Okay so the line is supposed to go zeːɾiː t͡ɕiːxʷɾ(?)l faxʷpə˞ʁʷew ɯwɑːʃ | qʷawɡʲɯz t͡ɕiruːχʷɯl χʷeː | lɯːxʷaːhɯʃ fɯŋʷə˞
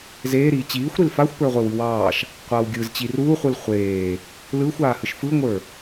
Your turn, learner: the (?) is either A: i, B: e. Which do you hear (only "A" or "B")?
A